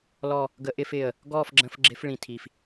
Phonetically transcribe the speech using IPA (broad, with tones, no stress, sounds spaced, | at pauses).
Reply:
l ɔ˥˧ | ɡ ə˧˥ ʔ ɪ˧˥˧ f ɪː˧˩ ə̯ | ɡ ɔː˥˧ f ɡ͡ǁ ə̃˧˥˧ f ɡ͡ǁ ɪ˧˥ f ɭ ĩ˧˩ tʰ i˧˩ f